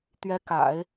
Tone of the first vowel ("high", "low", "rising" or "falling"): rising